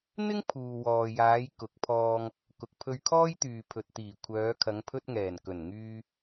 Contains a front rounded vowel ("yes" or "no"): yes